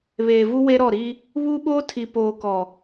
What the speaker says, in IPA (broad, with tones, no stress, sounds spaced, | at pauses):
β eː˨ v u˦ w e˦ ɾ ɔ˦˨ ɾ i˦ | β u˦ ɓ oː˦ tʰ i˨ p oː˨ k ɔ˨